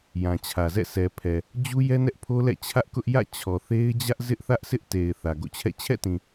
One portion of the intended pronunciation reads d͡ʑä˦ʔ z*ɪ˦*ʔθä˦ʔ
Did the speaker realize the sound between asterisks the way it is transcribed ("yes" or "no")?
yes